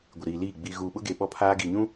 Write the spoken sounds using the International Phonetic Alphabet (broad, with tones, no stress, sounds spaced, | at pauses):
ɡʷ ɪ˨ ɾ iː˨ l iː˦˨ ɡ͡b i˨ ɣ uː˨ ɓ ʊ˦ ɡ e˨ ɓ ɔ˦ pʰ aː˦ ɡ i˨ ɲ ũ˦